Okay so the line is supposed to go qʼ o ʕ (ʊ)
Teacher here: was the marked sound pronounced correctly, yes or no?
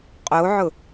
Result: yes